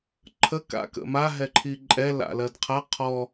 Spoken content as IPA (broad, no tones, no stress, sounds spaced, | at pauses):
ǃʰ ə k a̰ k ə̰ m a ɦ ɛ ǃʰ i ǃʼ ɛ l a̰ l ɜ d qʰ a qʰ ɔ